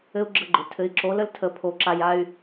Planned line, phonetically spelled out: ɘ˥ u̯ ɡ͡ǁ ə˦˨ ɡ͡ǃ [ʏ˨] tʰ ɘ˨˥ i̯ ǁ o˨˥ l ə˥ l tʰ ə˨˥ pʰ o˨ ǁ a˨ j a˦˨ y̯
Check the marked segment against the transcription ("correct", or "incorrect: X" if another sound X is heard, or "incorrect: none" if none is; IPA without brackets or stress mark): correct